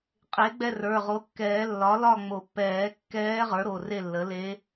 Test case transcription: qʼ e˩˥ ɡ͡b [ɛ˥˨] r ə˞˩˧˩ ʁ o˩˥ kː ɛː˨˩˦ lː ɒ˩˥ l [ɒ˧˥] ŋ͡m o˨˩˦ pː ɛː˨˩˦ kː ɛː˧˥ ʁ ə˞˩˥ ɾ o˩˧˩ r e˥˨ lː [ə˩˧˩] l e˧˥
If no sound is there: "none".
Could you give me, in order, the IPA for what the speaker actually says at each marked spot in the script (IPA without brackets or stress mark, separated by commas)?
ɛ˥˨, ɒ˥˨, ə˩˥